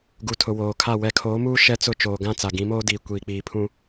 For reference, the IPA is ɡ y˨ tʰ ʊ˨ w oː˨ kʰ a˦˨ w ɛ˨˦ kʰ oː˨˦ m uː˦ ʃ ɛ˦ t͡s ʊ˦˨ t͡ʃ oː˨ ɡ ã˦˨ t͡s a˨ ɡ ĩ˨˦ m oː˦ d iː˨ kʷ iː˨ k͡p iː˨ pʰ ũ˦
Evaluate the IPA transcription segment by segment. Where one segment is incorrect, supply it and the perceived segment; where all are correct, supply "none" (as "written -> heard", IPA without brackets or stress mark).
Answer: y˨ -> u˨